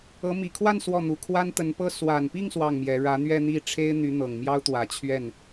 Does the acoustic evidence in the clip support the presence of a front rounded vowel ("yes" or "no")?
yes